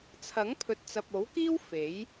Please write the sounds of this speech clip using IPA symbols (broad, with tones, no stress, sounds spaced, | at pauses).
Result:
t͡sʰ ɐ˨˥ ŋ pʰ ɵ˨ t̚ t͡s ɐ˨ p̚ o˨˥ w k iː˥ w f e˨˥ j